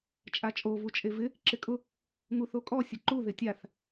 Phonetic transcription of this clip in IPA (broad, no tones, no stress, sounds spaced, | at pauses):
t͡ʃʼ a t͡ʃʼ o v u t͡ʃʼ e v ɪ | ǁ ɪ kʼ ʊ | ŋ u θ o kʼ ɔ sʲ ʊ ǃ u ð ɪ tʲ a θ